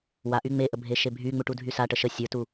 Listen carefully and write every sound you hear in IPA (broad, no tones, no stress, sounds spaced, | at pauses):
w a ʔ y ŋ͡m e ʔ ə bʱ e ʃ e bʱ y ŋ͡m u ʈ u dʱ y s a ʈ ə ʃ ə sʲ ə˞ t u